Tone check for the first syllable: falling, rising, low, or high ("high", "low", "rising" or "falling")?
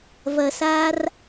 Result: low